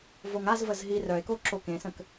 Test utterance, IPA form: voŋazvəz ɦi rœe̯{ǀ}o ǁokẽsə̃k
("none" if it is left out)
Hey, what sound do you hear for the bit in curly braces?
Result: k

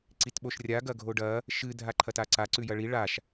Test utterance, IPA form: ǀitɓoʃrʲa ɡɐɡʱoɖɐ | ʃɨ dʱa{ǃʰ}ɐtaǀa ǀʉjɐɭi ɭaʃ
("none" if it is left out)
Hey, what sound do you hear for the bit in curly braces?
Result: ǃʰ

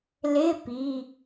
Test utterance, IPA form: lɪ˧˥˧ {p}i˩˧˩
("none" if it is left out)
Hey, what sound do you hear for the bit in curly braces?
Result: p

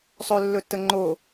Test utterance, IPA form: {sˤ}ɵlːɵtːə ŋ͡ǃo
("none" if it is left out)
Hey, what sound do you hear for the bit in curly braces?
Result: sˤ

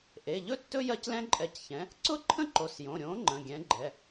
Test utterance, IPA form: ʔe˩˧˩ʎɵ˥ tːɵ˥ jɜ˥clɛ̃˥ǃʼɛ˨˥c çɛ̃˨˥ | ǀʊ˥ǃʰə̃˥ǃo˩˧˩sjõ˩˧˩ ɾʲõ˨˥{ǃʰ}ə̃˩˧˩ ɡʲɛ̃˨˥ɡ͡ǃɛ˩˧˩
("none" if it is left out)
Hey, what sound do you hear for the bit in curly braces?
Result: ŋ͡ǃ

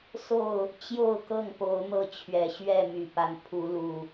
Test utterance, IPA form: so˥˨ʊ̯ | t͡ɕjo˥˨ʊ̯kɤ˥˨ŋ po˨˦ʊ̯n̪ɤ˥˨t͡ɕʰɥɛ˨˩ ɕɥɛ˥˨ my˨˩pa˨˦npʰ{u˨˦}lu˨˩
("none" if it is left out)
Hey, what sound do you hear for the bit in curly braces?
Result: u˨˦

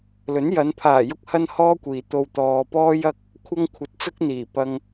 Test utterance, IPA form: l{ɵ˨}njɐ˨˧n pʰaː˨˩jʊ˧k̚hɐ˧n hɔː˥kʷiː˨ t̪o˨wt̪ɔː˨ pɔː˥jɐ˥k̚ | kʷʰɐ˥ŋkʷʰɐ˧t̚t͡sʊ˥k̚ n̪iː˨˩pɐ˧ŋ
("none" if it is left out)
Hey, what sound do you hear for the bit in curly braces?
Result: ɵ˨˥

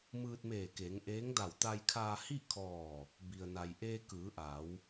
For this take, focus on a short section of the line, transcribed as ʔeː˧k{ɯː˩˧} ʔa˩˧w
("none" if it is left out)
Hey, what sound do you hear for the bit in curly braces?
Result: ɯː˩˧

